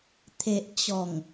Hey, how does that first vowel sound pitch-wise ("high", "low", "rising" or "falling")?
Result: low